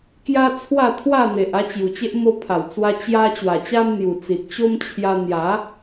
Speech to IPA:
k j a˦ t͡sʰ w a˥˧ t̪ʰ w a˥˧ n̪ e˨ ʔ a˦ t͡ɕ j u˨˩ t͡ɕ e˦ ʔ m o˧ pʰ a˨˩ w t͡s w a˧ t͡ɕ j a˦ t͡ɕ w a˨˩ t͡ɕ a˦ m n̪ j u˨˩ t͡s i˨ t̚ t͡ɕ o˦ m t͡ɕʰ j a˧ n̪ j a˨˦

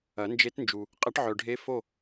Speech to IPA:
ɐ˨˩˦ n d͡ʒ e˧˥ t n d͡ʒ u˨ | qʼ ɐ˧˥ ʈ ʕ œ˨ ɖʱ e˧˥ f o˥˨

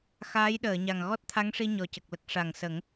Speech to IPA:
x aː˧˥ j ɗ əː˨˩˨ ɲ a˨˩ ŋ ɣ ɔ˦˥ t̚ t̪ʰ a˧˥ ŋ ʂ i˧ ɲ ɔ˨˩ c ə˨˩ k̚ l ə˦˥ k̚ ʂ a˨˩ ŋ s ə˨˩˦ ŋ

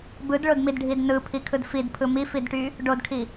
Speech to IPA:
b ɯ d ɭ o d m i d ɖʱ i d n ɯ pʰ i kʰ ɯ d f i d pʰ ɯ m i f i d ʈ y | ɖ o d kʰ i

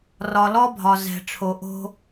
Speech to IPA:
r ɒ˨ l ɔ˦ bʱ ɒ˨ z ɛ̤˨ ʈ͡ʂʰ o˨ ʔ o̤˦

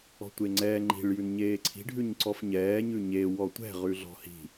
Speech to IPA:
ɔ̤ tʷ e ŋ͡ǀ ɛː ŋ͡ǃ i̤ ɭ j ʉ n ɲ eː ǀʰ i̤ ɖʱ ʉ ɲ ǀ ɔ f ɲ ɛː ɲ ʉ ɲ e w ɔ tʷ ɛ̤ ʁ ʉ ɮ ɔ̤ h i̤

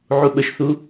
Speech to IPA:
ʕ u ɓ ə ʃ θ u

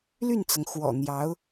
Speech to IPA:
l y˥˩ n t͡s ɤ˩ ŋ x w ɔ̰˨˩ n̪ j ɑ˧˥ ʊ̯

